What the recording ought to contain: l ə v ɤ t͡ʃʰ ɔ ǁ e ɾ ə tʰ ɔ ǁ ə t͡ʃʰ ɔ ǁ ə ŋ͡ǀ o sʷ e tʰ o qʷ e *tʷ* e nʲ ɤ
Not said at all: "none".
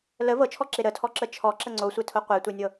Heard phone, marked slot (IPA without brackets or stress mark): tʷ